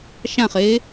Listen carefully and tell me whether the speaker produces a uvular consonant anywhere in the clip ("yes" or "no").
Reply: yes